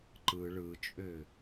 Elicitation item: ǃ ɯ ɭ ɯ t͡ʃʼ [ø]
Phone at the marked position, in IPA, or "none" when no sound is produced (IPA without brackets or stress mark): ø